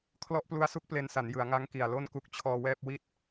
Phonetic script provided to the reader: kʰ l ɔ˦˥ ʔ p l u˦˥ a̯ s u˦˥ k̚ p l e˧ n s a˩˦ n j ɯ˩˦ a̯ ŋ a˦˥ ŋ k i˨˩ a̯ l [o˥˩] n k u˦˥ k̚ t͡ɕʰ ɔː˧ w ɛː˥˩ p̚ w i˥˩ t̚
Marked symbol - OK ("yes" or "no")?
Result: yes